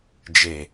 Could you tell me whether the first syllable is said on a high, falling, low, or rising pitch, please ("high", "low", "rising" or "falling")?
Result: low